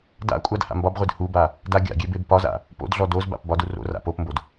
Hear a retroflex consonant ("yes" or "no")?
no